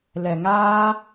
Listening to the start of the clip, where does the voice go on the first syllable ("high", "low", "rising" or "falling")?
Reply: low